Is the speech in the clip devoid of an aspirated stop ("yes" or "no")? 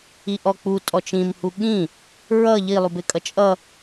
yes